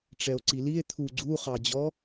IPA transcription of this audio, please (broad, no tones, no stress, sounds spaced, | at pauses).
ʈ͡ʂ ɛ o̯ ǀ i l i e̯ t̪ʰ u ɡ͡ǀ u χ ɑ d͡ʑ ɔ